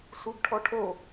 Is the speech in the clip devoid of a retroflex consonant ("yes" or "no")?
no